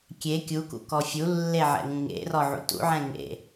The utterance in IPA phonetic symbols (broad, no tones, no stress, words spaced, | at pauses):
kʲe kʲukṵ kɔfʲulːe ʕɛ̰ŋũŋḛrɔ ʕṵtṵʕɛ̃ ŋḛ